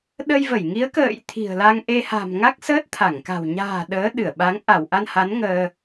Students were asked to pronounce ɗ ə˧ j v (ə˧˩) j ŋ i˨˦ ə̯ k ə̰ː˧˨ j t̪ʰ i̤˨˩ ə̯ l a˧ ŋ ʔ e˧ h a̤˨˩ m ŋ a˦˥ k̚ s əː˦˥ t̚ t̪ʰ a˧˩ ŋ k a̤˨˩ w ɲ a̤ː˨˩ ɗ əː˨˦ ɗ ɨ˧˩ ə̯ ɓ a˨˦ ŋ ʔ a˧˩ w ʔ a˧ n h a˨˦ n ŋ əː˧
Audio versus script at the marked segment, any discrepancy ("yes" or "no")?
no